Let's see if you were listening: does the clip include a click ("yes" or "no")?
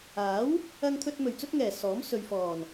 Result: no